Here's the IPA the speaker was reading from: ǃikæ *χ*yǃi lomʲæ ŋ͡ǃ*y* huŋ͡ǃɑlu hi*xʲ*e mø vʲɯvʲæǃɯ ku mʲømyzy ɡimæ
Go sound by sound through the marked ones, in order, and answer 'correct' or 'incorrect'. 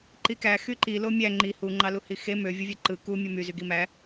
incorrect, incorrect, incorrect

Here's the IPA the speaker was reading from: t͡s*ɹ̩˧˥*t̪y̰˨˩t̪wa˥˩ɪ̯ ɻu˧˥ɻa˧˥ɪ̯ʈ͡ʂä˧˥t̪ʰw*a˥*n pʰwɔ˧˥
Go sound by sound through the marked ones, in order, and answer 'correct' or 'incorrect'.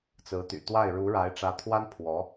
correct, correct

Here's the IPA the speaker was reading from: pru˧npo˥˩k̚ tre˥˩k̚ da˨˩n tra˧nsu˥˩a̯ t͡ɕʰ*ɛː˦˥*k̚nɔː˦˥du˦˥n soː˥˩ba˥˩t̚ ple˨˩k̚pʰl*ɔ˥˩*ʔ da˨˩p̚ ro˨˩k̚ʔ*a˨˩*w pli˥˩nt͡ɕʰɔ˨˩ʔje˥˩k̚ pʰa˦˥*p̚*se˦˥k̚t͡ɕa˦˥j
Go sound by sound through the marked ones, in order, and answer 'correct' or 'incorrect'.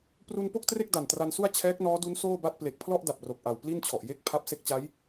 correct, correct, correct, correct

